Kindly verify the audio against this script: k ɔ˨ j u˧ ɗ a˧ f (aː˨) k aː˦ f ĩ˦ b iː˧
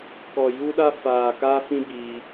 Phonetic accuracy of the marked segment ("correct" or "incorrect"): correct